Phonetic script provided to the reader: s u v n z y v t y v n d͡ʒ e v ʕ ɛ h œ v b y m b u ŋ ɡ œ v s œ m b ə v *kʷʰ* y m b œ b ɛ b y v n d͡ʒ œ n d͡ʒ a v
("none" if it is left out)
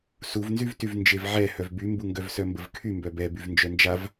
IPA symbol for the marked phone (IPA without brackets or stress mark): kʰ